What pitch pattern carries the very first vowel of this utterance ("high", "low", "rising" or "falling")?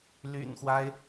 low